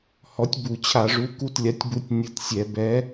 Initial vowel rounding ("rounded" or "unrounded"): rounded